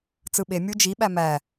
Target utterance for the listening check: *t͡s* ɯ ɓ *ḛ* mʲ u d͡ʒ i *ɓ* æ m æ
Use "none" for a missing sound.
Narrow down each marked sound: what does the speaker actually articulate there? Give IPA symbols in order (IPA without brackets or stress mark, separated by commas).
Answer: t͡s, e, ɓ